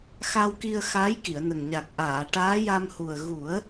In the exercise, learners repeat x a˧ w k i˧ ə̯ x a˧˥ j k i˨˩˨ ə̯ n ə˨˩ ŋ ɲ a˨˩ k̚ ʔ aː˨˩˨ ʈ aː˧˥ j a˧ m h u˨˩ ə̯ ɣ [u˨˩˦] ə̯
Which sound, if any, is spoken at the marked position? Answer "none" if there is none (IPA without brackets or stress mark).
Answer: u˨˩˦